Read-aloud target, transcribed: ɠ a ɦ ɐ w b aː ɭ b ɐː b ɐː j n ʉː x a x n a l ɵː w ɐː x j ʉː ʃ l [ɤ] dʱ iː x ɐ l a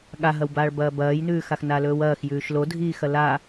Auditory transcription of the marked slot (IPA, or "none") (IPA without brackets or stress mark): o